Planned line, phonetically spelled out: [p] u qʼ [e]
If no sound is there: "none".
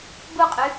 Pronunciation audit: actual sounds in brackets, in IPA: b, y

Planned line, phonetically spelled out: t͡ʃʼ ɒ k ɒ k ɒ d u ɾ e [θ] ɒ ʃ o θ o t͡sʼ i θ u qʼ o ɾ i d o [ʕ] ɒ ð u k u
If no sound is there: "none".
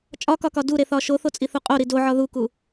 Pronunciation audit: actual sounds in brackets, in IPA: θ, ʕ

